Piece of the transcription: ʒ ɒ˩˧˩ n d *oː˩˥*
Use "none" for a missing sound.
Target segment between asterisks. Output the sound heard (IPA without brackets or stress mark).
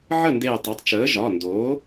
oː˩˥